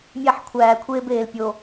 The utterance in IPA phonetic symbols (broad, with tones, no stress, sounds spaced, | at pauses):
mʲ æ˦˨ ħ kʷʰ æː˨ kʷʰ eː˦ b eː˨ l pʲ o˨